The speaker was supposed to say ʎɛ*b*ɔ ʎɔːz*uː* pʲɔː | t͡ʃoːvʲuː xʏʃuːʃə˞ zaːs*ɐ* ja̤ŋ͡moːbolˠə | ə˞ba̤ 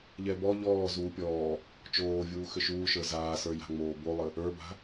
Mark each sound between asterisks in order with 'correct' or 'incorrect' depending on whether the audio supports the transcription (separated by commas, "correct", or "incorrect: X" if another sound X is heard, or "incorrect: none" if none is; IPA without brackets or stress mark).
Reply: correct, correct, incorrect: ə˞